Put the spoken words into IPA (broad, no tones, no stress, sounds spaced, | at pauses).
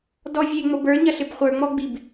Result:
d ɔ vʲ e ŋ͡m o b ə˞ ɲ ɐ ɬ ɪ b χʷ ə˞ ŋ͡m ɔ ɡ͡b i b